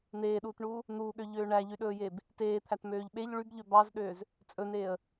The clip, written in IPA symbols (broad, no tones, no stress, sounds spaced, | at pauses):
n̪ eː ɗ uː t ɳ uː | n̪ uː ɠ ø ʎ øː ɳ æ ʎ y ɗ ɵː j eː b | t eː t̪ʰ æ t m øː ʎ ɓ e ʎ ɭ y b ʎ ø b ɑ z ɗ øː z | t͡sʼ ɵ n eː ə̯